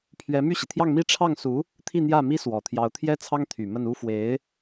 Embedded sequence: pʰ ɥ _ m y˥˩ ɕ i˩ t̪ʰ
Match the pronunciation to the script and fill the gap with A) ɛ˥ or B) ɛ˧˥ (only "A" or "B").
B